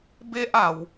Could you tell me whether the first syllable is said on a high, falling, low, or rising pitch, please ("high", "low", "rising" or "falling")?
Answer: high